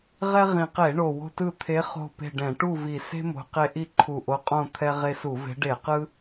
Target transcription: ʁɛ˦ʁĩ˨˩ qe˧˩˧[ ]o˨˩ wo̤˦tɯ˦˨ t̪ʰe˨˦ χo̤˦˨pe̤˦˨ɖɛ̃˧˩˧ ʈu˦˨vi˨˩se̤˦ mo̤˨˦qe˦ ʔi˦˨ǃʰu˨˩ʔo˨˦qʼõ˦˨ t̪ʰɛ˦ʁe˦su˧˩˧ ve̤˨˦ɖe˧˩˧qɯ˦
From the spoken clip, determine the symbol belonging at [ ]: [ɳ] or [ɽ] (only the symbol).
ɳ